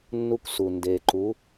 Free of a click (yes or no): no